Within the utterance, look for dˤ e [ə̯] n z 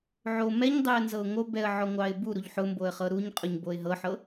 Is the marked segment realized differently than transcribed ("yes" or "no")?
no